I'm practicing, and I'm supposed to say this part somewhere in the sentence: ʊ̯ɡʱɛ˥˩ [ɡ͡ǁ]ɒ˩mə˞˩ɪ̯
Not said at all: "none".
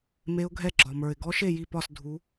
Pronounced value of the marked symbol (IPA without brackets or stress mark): ɡ͡ǁ